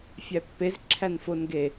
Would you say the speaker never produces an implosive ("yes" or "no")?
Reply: yes